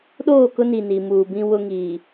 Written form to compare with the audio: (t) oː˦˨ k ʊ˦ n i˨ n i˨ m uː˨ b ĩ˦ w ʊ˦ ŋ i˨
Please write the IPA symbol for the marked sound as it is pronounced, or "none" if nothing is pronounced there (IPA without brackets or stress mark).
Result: ɗ